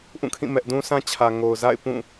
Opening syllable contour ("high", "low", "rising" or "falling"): falling